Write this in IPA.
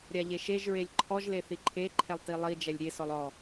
ɾʲaʎeʃeʒ ɹelʲǃʰɔʒ leθiǃʰe ǃʰɛlˠtilˠi d͡ʒɛlʲɾʲe sɔlˠɔ

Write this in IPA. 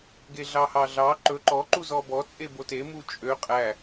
ɡeɮɑhɑɮɑ ǃɵ ǃɔ ǃuzɔbɔ t͡sʼebote mut͡ʃʼø qʼæ

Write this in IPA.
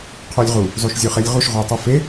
qʰølʲʁu | zˤoʃzʲøχelʲʁuʃ ʁotˤofe

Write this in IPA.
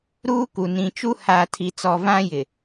ɾuː˦ku˨ nĩ˨t͡ʃu˦ haː˨tʰi˨t͡sɔ˨ vã˦jɪ˨

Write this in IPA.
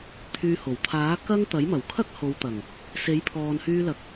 t̪ʰyː˧ho˨˩w t̪ʰaː˨˥ kɐ˥ŋ t̪ɐ˨˥jmɐ˨˩wkʰɐ˥k̚ ho˨˧wt̪ɐ˨˩ŋ | se˨˥jpʰɔː˨nhyː˧lɐ˨k̚

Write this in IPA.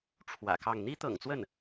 ʈ͡ʂʰwä̰˨˩kɑ˥˩ŋ n̪i˥t̪ɤ̰˨˩ŋt͡swə˥˩n

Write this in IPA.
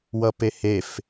wʌpehef

